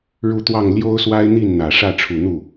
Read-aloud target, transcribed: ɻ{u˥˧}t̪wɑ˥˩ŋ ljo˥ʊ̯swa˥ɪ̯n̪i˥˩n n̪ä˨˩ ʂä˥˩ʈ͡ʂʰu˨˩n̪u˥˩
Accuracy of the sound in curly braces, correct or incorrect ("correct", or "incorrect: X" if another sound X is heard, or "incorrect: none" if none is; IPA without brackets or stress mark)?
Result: correct